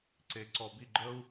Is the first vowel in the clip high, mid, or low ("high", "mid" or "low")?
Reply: mid